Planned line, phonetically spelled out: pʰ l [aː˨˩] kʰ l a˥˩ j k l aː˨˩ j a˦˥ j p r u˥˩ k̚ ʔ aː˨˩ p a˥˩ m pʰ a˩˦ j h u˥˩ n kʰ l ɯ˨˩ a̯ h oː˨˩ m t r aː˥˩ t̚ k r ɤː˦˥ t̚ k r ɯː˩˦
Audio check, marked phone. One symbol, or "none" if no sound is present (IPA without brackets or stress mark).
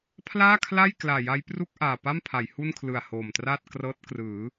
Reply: aː˥˩